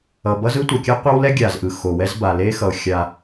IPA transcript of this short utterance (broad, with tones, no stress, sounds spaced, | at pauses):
ʌ˨ b ʌ˦ z ɯ˦ tʷ ʌ˨ kʲ a˦ qʷ a˦ w l ɛ˦ ɡʲ a˨ z ʔ ɯ˨ x o˨ w ɛ˦ z b a˨ l e˦ x ʌ˨ ʊ̯ xʲ a˦